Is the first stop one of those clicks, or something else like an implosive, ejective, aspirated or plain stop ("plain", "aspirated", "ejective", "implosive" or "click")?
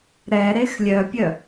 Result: plain